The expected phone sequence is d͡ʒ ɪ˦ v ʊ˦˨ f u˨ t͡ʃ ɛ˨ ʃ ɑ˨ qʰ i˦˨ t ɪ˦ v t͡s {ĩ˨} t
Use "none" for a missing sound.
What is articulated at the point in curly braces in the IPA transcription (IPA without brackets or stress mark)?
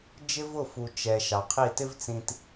ĩ˨